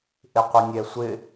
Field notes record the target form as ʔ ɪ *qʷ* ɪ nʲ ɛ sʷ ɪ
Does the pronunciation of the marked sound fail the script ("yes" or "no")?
no